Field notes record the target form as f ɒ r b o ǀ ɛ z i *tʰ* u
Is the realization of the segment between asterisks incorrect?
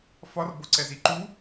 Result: yes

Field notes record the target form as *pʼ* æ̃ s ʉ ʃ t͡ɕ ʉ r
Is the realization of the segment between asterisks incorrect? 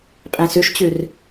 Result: no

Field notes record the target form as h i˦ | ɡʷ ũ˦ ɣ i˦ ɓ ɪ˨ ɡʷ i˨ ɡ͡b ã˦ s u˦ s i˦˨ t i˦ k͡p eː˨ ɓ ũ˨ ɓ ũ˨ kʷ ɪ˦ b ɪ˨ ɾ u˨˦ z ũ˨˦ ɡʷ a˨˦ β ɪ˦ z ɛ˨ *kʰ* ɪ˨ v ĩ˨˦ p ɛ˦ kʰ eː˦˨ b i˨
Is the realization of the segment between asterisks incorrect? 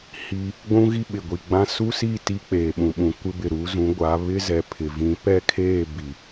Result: yes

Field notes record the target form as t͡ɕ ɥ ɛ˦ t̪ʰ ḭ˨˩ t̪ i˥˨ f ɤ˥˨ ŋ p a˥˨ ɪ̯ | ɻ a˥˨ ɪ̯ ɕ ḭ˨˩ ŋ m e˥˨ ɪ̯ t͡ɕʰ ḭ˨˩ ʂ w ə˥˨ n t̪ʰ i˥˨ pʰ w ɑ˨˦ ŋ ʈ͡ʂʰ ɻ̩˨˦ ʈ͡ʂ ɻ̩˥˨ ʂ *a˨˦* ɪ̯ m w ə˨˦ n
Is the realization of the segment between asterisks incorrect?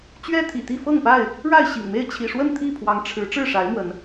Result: no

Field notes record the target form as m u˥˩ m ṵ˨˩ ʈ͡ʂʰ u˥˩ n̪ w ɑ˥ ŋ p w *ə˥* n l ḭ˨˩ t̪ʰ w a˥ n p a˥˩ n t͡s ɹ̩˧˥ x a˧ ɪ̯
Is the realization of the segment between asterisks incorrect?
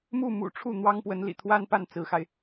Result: yes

